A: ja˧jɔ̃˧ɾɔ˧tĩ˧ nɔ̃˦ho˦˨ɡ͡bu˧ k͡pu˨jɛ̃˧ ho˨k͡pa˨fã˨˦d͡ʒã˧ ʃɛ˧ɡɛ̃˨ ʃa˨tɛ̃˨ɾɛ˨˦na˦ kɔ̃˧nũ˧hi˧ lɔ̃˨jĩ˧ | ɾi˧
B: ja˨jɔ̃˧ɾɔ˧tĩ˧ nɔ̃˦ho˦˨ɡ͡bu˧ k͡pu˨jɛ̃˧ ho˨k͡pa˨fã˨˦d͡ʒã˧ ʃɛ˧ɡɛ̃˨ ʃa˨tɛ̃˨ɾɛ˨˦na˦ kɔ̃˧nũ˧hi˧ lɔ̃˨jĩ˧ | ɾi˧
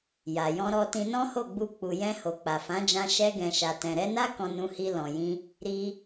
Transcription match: B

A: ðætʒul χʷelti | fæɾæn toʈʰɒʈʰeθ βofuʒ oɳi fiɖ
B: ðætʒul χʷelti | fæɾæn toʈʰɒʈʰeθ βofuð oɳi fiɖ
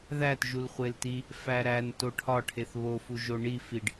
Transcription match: A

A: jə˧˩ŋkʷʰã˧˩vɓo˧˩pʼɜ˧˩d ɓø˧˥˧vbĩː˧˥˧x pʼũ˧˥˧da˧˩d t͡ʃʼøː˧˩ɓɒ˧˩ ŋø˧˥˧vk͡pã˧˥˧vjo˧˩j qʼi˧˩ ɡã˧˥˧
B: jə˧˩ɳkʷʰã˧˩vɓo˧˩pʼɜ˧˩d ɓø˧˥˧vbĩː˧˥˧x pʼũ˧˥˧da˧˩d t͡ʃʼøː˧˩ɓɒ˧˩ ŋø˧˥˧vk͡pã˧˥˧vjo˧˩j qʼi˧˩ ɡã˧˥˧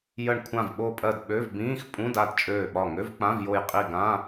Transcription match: B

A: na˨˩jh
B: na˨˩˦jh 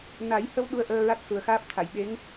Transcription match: B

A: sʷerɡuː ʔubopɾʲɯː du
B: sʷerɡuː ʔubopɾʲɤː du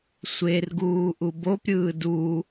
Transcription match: A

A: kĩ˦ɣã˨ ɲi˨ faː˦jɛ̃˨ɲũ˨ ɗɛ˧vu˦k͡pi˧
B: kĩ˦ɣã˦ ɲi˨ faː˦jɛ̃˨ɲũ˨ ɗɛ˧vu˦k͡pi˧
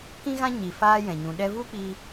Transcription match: B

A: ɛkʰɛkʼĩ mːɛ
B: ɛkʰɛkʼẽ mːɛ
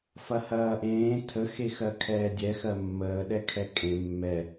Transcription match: B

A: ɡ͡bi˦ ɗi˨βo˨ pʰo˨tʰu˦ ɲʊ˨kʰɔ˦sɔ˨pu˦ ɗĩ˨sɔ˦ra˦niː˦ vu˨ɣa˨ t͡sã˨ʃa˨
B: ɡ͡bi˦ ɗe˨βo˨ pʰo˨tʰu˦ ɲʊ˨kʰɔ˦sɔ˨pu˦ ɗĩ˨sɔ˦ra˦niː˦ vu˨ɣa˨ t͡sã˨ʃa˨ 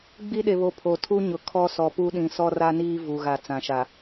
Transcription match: B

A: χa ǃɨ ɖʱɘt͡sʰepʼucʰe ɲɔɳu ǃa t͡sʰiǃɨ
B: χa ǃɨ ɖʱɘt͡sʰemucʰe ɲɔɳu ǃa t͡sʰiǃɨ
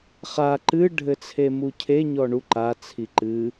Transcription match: B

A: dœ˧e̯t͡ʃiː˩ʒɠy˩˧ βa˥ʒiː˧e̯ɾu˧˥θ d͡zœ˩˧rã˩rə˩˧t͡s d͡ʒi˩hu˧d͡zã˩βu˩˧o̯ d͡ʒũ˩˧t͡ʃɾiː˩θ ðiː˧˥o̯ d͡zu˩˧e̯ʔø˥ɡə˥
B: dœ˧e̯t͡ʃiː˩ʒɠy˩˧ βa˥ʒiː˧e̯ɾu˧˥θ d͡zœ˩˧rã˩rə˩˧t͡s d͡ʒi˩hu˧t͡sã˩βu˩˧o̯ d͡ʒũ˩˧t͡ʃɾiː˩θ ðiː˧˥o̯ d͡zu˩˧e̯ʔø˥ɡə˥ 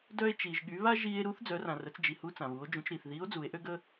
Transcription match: B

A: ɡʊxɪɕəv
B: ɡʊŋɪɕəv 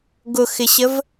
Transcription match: A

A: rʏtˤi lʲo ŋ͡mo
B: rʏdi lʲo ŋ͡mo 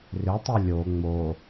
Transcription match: A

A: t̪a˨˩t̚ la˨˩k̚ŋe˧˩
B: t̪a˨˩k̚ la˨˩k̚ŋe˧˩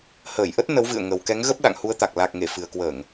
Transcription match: B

